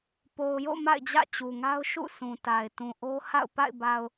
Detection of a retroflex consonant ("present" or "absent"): absent